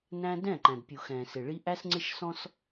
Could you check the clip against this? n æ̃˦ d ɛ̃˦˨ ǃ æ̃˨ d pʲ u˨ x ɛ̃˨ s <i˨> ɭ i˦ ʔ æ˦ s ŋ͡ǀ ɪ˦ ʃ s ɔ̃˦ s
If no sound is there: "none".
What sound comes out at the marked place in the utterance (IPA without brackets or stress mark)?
ɪ˨